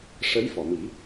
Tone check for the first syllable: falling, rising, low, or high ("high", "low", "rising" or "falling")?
rising